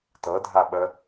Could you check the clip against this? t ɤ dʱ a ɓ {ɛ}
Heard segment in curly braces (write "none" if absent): ə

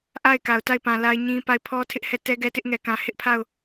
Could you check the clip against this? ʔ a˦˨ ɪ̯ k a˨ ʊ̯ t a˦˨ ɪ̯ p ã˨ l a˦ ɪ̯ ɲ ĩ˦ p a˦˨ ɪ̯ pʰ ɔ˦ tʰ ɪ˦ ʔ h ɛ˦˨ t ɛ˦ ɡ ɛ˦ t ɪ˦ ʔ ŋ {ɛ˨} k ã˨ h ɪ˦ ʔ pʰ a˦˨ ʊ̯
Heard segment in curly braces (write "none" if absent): ɛ˨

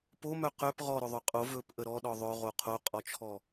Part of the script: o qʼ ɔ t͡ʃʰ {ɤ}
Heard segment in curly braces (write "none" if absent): ɔ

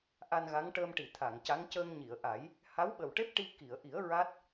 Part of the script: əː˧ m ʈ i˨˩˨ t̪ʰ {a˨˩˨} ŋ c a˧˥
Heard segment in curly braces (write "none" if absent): a˨˩˨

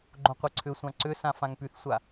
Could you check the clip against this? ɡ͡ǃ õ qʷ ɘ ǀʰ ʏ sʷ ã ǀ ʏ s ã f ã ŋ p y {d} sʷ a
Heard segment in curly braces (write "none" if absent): θ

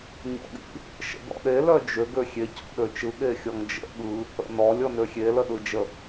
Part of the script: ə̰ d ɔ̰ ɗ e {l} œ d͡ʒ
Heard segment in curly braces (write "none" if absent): l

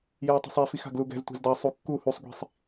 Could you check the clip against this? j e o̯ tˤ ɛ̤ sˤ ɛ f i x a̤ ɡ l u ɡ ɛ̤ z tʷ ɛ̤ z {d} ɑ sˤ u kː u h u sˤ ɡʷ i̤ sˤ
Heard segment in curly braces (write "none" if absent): d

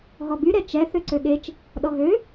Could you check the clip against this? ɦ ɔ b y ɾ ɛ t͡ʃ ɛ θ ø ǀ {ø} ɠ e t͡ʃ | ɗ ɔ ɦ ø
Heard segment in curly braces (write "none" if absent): ø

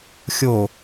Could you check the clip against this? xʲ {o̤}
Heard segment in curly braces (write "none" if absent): o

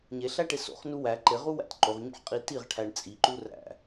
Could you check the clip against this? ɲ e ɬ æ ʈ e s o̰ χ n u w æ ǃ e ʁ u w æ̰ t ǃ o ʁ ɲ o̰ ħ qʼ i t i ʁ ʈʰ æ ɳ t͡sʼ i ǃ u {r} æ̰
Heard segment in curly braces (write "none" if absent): r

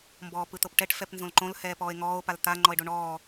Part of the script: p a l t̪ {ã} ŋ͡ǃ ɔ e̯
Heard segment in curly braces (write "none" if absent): a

